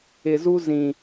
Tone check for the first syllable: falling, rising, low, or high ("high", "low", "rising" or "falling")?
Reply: low